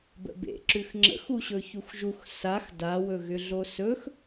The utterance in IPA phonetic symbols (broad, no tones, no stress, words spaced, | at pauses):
bə̰bḛǁʉx ŋ͡ǁə̰xuɕɵ çuxʒux sax dawɵɣʏɮo sɵx